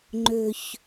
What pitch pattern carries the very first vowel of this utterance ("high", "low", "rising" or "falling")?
low